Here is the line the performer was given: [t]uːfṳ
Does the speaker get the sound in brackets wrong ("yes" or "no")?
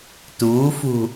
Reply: no